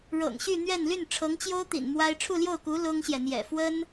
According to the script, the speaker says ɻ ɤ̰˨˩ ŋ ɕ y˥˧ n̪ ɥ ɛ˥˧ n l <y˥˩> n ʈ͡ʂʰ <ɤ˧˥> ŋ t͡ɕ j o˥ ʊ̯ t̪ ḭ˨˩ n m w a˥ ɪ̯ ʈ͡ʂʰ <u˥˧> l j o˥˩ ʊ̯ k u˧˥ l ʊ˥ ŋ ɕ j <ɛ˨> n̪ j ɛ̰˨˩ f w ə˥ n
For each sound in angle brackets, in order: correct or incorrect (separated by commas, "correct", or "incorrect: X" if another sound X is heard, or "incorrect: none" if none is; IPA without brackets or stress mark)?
correct, correct, correct, correct